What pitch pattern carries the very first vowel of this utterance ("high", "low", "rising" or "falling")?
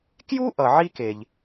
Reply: high